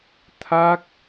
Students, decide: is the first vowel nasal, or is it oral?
oral